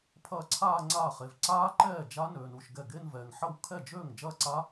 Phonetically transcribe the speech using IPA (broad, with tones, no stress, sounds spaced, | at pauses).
pʰ ɐː˥˩ ǀʰ aː˥˧ ŋ͡ǀ aː˥˩ χ e˨ v ǀ aː˦˥ ǃ ɛː˥˩ d͡ʒ a˦˥ n øː˨ n u˨ ʃ ɡ ɛ˥˩ ɡ e˥˧ n v ɛː˨ ŋ ħ ɐ˥˩ w kʰ ɛ˥˩ d͡ʒ øː˥˩ ŋ d͡ʒ ɐː˥˧ ǀ a˦˥